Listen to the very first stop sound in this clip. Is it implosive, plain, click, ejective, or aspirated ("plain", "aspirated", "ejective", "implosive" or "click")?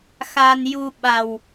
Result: implosive